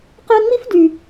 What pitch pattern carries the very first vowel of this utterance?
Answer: high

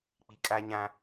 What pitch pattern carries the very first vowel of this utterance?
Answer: low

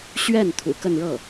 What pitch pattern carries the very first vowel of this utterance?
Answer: falling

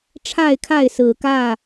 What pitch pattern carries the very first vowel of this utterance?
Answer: falling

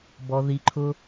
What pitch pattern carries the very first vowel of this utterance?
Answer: low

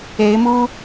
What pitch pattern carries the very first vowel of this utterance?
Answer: rising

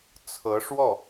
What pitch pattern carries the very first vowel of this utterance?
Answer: rising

